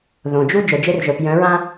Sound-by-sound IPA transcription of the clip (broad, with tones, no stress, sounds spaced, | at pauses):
ð õ˨ d͡ʒ u˦ d͡ʒ œ˨ d͡ʒ e˦ r ʒ œ˨ p j œ̃˨˦ ɹ ã˦